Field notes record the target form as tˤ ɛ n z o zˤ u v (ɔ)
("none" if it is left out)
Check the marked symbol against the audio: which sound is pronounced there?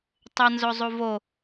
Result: o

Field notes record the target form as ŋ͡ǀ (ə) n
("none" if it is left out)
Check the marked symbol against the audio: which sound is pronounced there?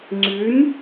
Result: ʉ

